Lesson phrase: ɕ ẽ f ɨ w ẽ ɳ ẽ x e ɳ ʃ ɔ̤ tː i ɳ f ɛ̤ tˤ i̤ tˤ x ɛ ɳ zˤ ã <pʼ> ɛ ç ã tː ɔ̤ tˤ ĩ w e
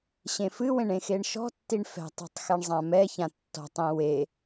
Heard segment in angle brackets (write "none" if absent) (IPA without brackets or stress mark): m